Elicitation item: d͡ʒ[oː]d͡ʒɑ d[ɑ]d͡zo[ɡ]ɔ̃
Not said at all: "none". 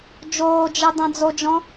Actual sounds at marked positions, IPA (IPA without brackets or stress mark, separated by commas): oː, ɑ̃, d͡ʒ